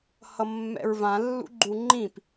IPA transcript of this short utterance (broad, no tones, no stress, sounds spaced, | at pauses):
h ʌ mː ɛ̰ ɹ v ã lː ṵ ɡ͡ǃ u ŋ͡ǃ ĩ p